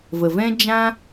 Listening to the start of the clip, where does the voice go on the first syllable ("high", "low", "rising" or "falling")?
low